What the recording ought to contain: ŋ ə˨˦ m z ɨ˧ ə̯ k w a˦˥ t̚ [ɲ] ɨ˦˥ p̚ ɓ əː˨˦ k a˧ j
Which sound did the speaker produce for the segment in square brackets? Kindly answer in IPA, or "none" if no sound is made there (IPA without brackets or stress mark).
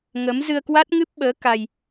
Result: ŋ